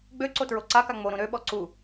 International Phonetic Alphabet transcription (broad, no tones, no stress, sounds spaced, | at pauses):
ɡ͡b ø ǀ o t ɹ o ǀ a k a ŋ͡m o ɾ ũ ɾ ø ɓ ɔ ǀ u